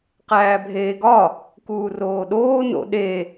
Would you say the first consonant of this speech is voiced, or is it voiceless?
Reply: voiceless